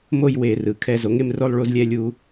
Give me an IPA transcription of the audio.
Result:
m o˥˧ j w e˧˩˧ r ɯ˩˧ kʰ ɛ˧ z o˩˥ ŋ e˥˧ m r o˥˧ lˠ ɭ u˧ z lʲ ɛ˧ lʲ u˧

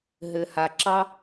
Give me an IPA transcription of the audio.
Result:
ɦ ɘ˩ h a˩ ǁ ɑ˥

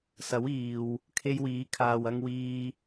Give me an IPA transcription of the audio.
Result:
s ɐ˨˥ w iː˨ w | kʰ e˧ j w iː˨˥ kʰ aː˨ w ɐ˧ ŋ w iː˧

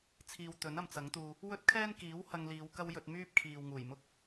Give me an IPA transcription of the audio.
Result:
t͡sʰ iː˨ w t̪ ɵ˨˥ n ɐ˨ m t͡s ɐ˨˥ ŋ t̪ uː˧ | w ɵ˥ t̚ kʰ ɛː˥ n k iː˨˥ w h ɐ˧ ŋ l iː˨˧ w k ɐ˥ w j ɵ˧ t̚ m yː˥ p̚ kʰ iː˨ w ŋ uː˨˩ j m ʊ˥ k̚

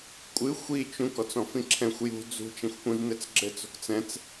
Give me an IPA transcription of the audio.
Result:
kʷʼ ɨ xʷ i t͡ʃ ũ k ɔ t͡s ɔ̃ f ĩ ǁʰ ɛ̃ xʷ j ṳ d͡z ṳ t͡ʃ ɛ̃ xʷ p ũ z n ɘ t͡s ɡ͡ǁ ɘ t͡s o̤ k t͡s ɛ̃ t͡s

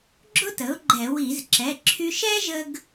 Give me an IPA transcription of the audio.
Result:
ɡ͡ǁ ʊ˥ t ə˩˥ ʊ̯ ɡ͡ǃ ɛ˧˩˧ w i˧˩˧ z ǁ ɛ˩˧˩ ǁʰ y˧ ʃ ɛ˥ ʒ ə˥ ɡ

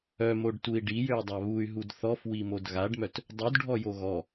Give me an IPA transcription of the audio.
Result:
œ m o ɖ t u i̯ ɖ i j ø y̯ dˤ a β u y̯ ɦ u d θ ɔ f w i m o d ɣ a ɖ m œ t | dˤ u d ɖʱ ɔ j o ɣ ɔ

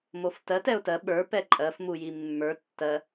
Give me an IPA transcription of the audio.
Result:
m o f t ɜ t ɛ ʊ̯ t ɜ ɓ ə˞ p ɛ ǃʼ ɜ f m u j i mː ə˞ tː ɜ

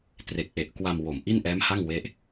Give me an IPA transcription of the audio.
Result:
t r e˨˩ k̚ ʔ e˨˩ ʔ k w a˧ m w o˨˩ m ʔ i˥˩ n ʔ ɛː˦˥ m h a˥˩ ŋ w e˦˥ ʔ

